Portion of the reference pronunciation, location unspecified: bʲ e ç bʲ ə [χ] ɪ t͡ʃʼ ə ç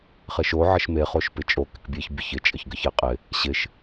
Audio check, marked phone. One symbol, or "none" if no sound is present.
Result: ç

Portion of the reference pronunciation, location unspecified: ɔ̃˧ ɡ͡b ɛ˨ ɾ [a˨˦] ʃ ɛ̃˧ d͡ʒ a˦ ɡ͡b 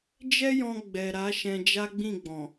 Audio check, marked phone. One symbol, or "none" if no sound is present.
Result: a˨˦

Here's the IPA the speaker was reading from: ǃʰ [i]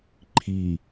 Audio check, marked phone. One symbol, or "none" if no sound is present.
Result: i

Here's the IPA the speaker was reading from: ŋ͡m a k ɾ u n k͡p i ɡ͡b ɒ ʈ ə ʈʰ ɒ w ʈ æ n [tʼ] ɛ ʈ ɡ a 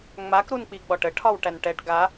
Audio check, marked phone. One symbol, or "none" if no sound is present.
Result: ʈ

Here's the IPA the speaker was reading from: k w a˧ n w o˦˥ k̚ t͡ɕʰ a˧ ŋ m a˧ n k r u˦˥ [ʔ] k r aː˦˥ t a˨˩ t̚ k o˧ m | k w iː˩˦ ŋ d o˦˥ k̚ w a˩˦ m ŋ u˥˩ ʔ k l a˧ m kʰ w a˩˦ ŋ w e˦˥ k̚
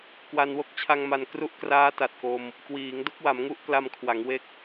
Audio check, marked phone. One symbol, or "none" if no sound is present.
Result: ʔ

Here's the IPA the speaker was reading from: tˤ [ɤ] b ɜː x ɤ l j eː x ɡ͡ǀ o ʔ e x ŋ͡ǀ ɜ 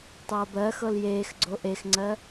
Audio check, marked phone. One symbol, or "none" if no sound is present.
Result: ɤː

